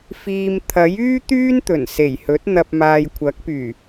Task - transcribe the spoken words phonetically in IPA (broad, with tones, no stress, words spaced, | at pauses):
fiː˧m t̪ʰɐ˨˥jyː˥ t̪yː˥nt̪ɵ˨˩nse˨˩jhɵ˨˥t̚ n̪ɐ˨p̚maː˨j kʷʰɐ˨˥k̚pyː˨˩